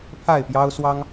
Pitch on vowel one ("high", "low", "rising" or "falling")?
falling